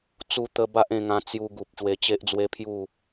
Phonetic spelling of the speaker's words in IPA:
t͡s u˧ t̪ ə˧ b a˦ ʔ ẽ˧ ŋ ã˧ t͡s j u˧ ɡ u˨ p̚ ɕ w e˧ t͡ɕ e˦ ʔ d͡z w e˦ pʰ j u˥˧

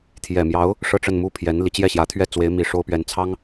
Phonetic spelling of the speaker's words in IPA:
t̪ʰ j ɛ˨˩ m j ɑ˧˥ ʊ̯ | ʂ ɤ˥˧ ʈ͡ʂ ə˥˧ n m u˥˩ pʰ j ɛ˧˥ n l i˧˥ t͡ɕ j ɛ˥˩ ɕ j ä˧˥ t̪ʰ ɥ ɛ˥˩ t͡s w e˧˥ ɪ̯ m i˨˩ ʂ o˥ ʊ̯ p ɥ ɛ˧˥ n t͡sʰ ɑ˥ ŋ

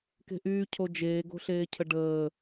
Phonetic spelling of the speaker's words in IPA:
k e̤ ʔ yː cʰ o d͡ʒ eː ɡ o̤ ɬ eː cʰ ə ɖ əː

